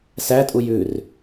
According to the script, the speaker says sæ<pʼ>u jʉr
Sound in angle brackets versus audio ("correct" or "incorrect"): incorrect